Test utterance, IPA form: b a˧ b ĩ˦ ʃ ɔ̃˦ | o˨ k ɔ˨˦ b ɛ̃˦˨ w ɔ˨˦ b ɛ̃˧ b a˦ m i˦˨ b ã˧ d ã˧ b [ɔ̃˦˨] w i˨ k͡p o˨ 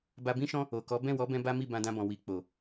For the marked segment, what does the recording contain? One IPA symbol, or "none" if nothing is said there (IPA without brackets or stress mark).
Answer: ɔ̃˨